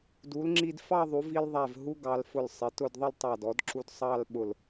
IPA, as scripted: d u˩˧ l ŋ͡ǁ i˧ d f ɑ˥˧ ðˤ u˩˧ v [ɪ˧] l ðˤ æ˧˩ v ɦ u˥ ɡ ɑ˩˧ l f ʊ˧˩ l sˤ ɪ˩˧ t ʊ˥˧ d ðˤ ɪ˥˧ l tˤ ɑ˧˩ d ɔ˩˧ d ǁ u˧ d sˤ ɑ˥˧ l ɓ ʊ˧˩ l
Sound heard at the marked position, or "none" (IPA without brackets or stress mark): i˧